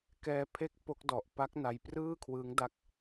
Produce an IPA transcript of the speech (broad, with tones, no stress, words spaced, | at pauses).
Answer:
kɛː˧pʰe˦˥k̚ po˦˥k̚dɔ˨˩ʔ pa˦˥k̚ na˧jprɯː˥˩kʰwɯ˦˥ŋda˦˥k̚